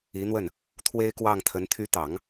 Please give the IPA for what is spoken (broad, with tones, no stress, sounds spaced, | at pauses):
i˧˥ n̪ w ə˥˩ n | t̪ʰ w e˥ ɪ̯ k w ɑ˥˩ ŋ t̪ʰ ə˧˥ n t̪ʰ y˧˥ t̪ ɑ˨˩˦ ŋ